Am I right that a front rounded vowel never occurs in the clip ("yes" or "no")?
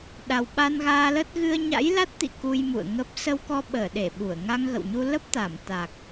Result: yes